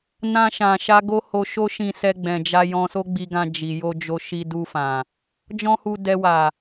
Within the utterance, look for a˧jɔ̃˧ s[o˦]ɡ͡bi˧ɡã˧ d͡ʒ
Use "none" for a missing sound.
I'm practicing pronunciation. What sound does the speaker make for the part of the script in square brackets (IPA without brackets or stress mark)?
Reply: o˦